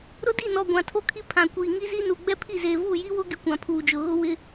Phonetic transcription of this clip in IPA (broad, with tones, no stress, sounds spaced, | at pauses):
ɾ ʊ˦ d i˦˨ n ɔ˨ ɡʷ ã˨ tʰ o˦ kʰ i˦ pʰ ã˨ kʷ iː˨ ŋ i˦ z i˦ n u˨ ɡ͡b ɛ˦ pʰ i˦˨ z eː˨ v uː˦˨ j i˦ w ʊ˦ ɡ ɪ˦ kʷ ã˨ pʰ uː˨ d͡ʒ ʊ˨ ɣ ʊ˦ w ɪ˦